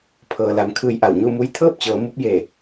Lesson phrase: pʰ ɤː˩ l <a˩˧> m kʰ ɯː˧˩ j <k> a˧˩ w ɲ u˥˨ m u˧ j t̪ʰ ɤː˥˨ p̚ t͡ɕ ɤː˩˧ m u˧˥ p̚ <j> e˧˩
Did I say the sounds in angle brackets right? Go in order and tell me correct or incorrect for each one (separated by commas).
correct, incorrect, correct